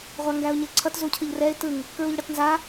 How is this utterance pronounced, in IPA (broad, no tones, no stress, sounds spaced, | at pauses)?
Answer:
ʁʷ a ŋ ɡ æ ʊ̯ ɲ ɘ ǀʰ ʌ t z u cʰ ɯ ʎ r ɛ ɪ̯ t ɯ ŋ | k ɹ u ʎ ɽ ʌ t n z a